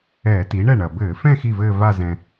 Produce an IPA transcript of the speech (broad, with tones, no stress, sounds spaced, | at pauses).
ɛː˧˩˧ t i˩˥ ɳ ɛ˥˩ ɳ ɐ˩ b ɘː˧˩˧ f ɛ̃˥˧ x i˥˩ v ɘː˥˧ v a˥˧ z ɛ̃˩